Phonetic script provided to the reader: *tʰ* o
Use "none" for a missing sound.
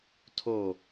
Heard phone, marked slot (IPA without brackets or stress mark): tʰ